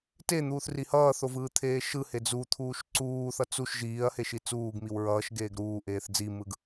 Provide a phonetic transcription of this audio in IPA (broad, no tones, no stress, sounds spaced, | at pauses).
t e n̪ uː θ r i h ʌː θ o v ɯː t̪ʰ eː ʃ ɯ h e d͡z u t̪ʰ uː ʃ ǀ uː θ ʌ t͡s u ʃ ʒ iː ɐ̯ h e ʃ i t͡s uː ɡ m i w ɹ ʌː ʃ ɡ eː ɡ ɾ uː ʔ eː θ d͡z i m ɯ ɡ